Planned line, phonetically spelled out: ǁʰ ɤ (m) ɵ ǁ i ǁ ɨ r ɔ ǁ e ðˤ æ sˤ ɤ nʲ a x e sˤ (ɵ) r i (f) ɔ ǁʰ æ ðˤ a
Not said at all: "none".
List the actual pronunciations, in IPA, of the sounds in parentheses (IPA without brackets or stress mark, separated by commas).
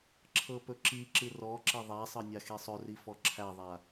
p, ɵ, f